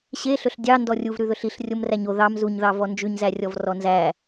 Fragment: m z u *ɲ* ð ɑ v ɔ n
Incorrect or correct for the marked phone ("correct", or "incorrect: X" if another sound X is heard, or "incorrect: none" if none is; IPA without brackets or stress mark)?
correct